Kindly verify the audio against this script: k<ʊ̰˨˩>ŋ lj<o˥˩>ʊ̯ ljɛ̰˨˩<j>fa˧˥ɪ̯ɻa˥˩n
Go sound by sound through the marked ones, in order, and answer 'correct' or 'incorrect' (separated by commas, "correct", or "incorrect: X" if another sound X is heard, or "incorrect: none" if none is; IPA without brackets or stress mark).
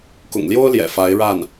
correct, incorrect: o˥, incorrect: none